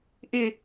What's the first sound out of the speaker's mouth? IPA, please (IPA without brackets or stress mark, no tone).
ʔ